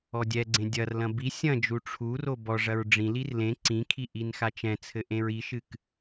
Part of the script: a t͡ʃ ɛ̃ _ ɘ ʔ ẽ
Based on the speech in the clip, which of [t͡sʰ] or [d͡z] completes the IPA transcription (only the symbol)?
t͡sʰ